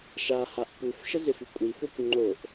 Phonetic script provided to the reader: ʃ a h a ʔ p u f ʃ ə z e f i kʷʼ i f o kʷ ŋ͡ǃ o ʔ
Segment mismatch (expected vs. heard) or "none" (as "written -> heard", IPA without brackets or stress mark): none